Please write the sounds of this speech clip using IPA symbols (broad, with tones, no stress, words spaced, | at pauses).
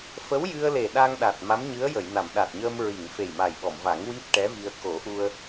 fə˧˥wjɨ˧ə̯le˨˩ ɗa˧ŋɗa˨˩t̚ ma˧˥mɲɨ˧˥ə̯jə˨˩˨jna˨˩˨m ɗa˨˩t̚ɲəː˧m ɹi˨˩˨ŋ fe˨˩jma˨˩jɓɔ˨˩˨mva˨˩˦ŋ wi˦˥p̚ʈɛ˧˥vi˧ə̯ ko˨˩˦ʔu˧ə̯